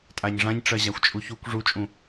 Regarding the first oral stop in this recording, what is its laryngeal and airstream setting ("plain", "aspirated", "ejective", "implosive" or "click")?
ejective